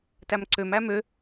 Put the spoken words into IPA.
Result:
t æ m ǀ ø m æ m ø

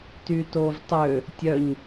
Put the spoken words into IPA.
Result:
t y t o v tˤ ø | tʲ œ ɲ

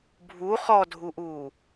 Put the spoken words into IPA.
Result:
bʱ u χ ɔ dʱ u ʔ uː

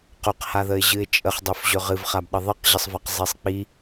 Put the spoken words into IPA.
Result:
q ɵ q h a ð ə ɪ̯ ʑ ɨ ɪ̯ t͡ʃʼ ə χ dˤ ɵ f ʑ ɵ ʁ ɨ v χ a b ɗ ə ðˤ ɨ q ʑ ə sˤ v a q zˤ i sˤ k͡p i

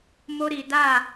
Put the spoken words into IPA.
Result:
m o˦ ɾ i˨ d a˦˨

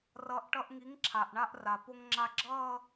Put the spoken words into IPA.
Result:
r ʌ˨˥ ʔ ʈ ʌ˧ ʔ ŋ i˨˥ ŋ ǁʰ a˩ ʔ ɳ a˧ ʔ r a˩ p o˧ ŋ ŋ͡ǁ a˧ ɡ͡ǁ ʌː˥˧

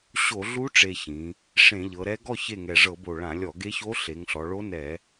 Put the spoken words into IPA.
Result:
ɕ o˧˩˧ ɮ u˧˥ ʈ͡ʂ e˨˩ ç ĩ˩˧ | ʂ ẽ˧˩˧ ʎ ɤ˩˧ ɾ ɛ˧˥ ɡ ɔ˥˩ ç e˥˩ ŋ ɛ˨˩ ʐ ɤ˧˩˧ b o˨˩ ɭ ã˧˩˧ lʲ ɔ˧˩˧ ɡ e˧˥ ç o˧˥ ɬ e˩˧ ŋ ɬ ɔ˩˧ ɭ o˧˥ n ɛ˧˩˧

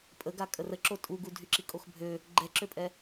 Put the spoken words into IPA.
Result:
pʼ ə ɡ a kʼ ə r ə ǁ o tʼ u ɡ u dʱ y ǁ i kʼ o x bʱ ø | ɡ͡ǃ ɛ ǁ ø pʼ ɛ

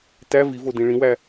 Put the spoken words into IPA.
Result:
t æ v i v o d ĩ ɭ ĩ w æ

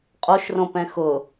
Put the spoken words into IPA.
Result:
qʼ o ʃ r õ p ɛ̃ x ʊ

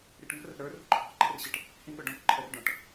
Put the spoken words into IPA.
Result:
ɾ i ʈ ŋ ə̤ r ə̤ ɾ ə˞ r ṳ ǃʰ ɑ̤ ǃ ɛ̤ r ɕ ɪ ʈ | h ĩ ɠ ʊ ɖ ɔ̃ k ǃʰ ɛ r ɖ ɔ̃ ʈ

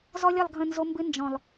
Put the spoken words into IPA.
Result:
z ɔ˦ lʲ ə˦˨ lˠ ɡʱ ə̃˦˨ n z o˦ m b ɨ˦ n d͡ʒ ɔ̃˨ lˠ

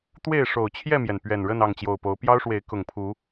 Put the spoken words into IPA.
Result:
t̪ w e˥˨ ɪ̯ ʂ o˨˩ ʊ̯ t͡ɕʰ j ɛ˥˨ m j ɛ˩ n p ɥ ɛ˨˩ n ɻ ə˥˨ n ɑ˥˨ ŋ t͡ɕ j o˨˩ ʊ̯ p o˨˦ ʊ̯ p j ɑ˦ ʊ̯ ʂ w e˨˦ ɪ̯ k ʊ˨˩ ŋ pʰ u˨˦

